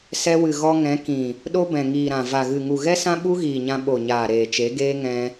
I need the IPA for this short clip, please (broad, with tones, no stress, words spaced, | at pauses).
sɛ˧wɨ˨ ɣɔ˧ŋɛ̃˨˦ kĩ˨ | ɗo˦bɛ̃˨ŋiː˨ɾã˨ va˨ɣɨ˨ ŋu˨ɣɛ˦sã˦ ɓu˦ɣiː˨ɲã˧ ɓo˨ɲaː˨ ɾeː˨t͡ʃe˨˦ɡeː˦ ŋɛ̃˧